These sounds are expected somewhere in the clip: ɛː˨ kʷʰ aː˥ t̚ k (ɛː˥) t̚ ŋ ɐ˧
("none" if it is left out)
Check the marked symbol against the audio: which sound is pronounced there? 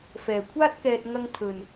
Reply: ɛː˧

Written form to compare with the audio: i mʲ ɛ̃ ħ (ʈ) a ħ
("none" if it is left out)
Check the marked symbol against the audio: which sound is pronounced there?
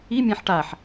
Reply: ʈ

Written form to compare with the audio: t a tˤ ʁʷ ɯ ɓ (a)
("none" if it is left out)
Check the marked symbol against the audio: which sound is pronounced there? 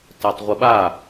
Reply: a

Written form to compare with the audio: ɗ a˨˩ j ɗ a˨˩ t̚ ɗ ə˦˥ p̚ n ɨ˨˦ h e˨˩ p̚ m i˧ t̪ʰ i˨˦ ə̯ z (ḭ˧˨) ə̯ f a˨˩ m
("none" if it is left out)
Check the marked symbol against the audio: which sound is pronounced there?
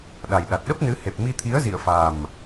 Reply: ḭ˧˨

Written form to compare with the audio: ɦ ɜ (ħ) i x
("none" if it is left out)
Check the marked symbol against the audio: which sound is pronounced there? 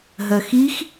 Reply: x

